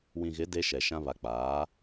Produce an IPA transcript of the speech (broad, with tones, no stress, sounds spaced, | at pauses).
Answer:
w ĩ˨ ɣ ɪ˨˦ d e˦ ʃ ɛ˨ ʃ ã˦ β a˨ k͡p aː˨˦